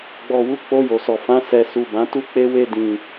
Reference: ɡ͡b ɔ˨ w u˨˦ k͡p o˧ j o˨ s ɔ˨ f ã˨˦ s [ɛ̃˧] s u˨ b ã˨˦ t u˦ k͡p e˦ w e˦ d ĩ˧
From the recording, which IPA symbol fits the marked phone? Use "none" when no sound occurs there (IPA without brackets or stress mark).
ɛ˧